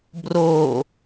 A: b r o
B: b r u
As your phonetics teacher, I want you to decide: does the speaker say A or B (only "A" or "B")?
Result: A